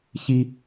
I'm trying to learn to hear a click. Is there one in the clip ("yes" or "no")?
no